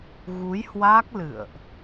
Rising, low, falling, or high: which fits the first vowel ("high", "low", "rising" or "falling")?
rising